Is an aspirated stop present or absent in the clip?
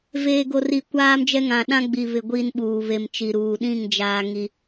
absent